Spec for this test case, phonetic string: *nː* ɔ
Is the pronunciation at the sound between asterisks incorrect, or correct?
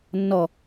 correct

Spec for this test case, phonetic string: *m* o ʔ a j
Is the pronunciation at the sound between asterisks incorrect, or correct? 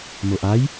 correct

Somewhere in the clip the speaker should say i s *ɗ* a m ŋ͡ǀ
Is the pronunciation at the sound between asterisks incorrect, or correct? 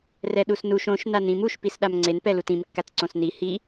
correct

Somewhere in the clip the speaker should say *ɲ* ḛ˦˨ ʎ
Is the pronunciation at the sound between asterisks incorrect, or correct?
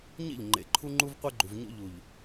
correct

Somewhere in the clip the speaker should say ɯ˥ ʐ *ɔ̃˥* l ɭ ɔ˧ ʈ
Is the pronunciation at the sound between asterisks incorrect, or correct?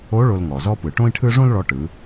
incorrect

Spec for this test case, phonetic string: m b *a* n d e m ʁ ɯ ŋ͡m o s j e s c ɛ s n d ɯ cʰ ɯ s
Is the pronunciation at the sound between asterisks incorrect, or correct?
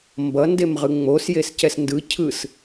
incorrect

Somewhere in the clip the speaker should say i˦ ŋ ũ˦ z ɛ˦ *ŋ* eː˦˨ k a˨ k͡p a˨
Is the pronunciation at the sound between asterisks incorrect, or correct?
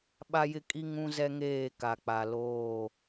correct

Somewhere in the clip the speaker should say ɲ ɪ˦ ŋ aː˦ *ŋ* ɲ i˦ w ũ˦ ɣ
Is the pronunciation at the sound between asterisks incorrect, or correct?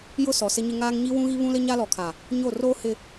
correct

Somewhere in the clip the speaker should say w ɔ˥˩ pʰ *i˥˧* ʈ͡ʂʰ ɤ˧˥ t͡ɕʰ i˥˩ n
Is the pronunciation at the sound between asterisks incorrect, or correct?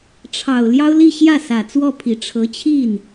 incorrect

